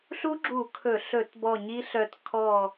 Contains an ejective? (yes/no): no